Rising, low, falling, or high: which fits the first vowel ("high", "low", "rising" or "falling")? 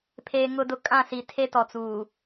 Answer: low